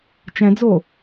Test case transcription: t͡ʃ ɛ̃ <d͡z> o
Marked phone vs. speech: correct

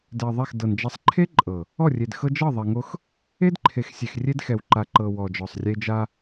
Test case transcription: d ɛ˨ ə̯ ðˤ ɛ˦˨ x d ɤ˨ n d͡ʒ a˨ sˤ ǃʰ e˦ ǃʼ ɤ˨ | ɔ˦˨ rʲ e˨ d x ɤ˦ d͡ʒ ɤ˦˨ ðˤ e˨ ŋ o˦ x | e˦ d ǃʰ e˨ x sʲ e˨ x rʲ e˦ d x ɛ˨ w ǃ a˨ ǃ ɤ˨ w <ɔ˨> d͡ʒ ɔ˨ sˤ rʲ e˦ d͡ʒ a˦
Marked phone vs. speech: correct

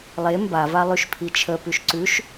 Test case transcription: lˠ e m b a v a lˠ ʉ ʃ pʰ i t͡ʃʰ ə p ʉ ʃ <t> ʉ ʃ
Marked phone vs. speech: incorrect: ǀ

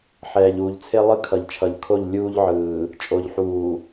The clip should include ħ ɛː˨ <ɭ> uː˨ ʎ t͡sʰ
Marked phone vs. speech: incorrect: ʎ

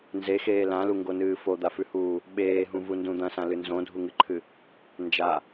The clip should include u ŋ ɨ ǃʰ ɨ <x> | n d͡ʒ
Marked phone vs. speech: incorrect: none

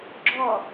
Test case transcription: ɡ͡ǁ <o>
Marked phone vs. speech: incorrect: ɔ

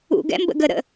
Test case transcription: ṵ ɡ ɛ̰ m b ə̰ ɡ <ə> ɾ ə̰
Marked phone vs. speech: correct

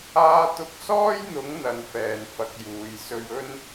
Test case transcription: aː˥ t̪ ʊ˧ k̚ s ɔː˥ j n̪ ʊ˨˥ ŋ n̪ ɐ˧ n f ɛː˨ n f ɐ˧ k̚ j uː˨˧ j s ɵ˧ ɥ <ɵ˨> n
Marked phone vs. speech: incorrect: ɵ˥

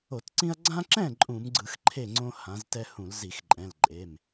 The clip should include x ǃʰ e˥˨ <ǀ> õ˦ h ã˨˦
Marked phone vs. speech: incorrect: ŋ͡ǀ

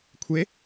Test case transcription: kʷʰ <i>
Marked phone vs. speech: incorrect: e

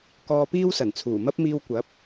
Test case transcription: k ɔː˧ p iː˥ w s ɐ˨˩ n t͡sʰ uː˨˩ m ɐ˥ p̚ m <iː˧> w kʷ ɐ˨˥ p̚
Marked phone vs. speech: correct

